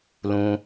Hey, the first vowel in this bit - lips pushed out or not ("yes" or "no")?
yes